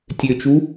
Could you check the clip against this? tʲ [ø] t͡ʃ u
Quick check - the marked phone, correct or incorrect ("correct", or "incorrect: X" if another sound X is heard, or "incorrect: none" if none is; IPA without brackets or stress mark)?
correct